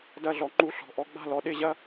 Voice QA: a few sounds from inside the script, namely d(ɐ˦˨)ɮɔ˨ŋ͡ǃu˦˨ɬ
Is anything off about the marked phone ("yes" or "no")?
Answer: no